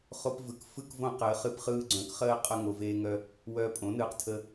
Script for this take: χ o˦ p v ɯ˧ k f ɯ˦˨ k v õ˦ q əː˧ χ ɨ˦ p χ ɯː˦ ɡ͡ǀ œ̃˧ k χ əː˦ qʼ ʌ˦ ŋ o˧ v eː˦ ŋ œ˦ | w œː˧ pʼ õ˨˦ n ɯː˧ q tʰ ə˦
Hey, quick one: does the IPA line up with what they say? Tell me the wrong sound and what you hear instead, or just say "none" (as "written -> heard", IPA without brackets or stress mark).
none